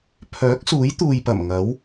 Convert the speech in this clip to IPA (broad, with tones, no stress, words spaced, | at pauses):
pʰœː˨˥k̚suː˨˥j t̪uː˨jpɐ˨˩m ŋɐ˨˥w